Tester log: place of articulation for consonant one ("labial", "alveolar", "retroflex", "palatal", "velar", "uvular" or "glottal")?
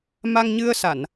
labial